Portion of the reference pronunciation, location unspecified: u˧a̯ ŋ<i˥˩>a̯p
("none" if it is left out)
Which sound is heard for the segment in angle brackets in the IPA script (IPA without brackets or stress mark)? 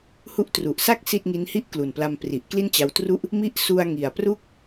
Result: i˨˩